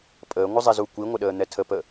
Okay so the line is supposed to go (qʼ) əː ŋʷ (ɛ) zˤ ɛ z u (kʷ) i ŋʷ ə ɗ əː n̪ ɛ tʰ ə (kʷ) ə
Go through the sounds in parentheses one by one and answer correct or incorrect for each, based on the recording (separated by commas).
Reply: incorrect, incorrect, correct, incorrect